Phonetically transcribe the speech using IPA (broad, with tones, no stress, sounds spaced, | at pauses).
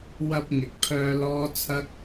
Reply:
w ɐ˧ p̚ ŋ ɪ˨ k̚ pʰ œː˧ l ɔː˥ t͡sʰ ɐ˥ k̚